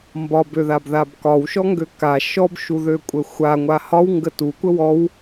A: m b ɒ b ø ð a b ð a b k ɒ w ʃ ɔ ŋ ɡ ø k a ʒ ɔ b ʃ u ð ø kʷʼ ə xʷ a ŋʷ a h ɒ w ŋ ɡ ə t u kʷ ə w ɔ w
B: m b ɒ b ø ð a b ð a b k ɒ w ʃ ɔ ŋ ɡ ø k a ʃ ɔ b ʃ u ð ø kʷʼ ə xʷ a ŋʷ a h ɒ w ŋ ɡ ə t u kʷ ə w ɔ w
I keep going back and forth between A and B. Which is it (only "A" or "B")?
B